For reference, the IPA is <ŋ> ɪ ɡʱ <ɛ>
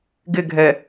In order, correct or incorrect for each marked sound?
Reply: incorrect, correct

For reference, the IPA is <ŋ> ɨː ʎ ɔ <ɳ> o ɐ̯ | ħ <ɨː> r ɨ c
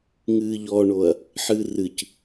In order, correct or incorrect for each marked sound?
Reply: correct, correct, incorrect

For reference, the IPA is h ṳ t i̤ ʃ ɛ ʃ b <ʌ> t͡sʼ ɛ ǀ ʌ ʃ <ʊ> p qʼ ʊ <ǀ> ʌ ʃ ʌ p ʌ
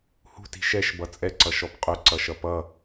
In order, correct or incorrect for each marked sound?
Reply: correct, incorrect, correct

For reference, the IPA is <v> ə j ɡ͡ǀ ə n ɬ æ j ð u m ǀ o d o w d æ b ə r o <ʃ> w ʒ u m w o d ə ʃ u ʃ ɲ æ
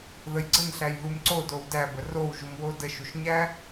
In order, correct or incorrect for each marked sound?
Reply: incorrect, incorrect

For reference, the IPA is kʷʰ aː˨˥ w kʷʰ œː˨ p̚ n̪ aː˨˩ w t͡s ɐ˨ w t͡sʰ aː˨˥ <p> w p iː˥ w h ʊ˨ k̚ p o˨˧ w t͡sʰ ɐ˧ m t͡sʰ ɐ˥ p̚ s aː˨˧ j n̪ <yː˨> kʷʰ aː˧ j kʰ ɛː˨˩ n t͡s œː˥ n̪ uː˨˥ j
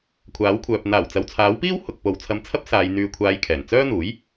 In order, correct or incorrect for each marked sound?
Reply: incorrect, incorrect

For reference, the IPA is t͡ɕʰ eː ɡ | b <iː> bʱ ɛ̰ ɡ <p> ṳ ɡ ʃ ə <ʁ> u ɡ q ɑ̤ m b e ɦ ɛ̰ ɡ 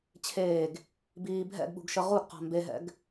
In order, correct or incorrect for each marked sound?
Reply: correct, incorrect, correct

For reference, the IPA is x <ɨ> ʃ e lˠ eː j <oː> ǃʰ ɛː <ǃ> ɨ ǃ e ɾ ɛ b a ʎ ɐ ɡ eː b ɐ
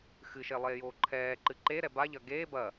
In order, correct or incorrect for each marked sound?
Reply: correct, correct, correct

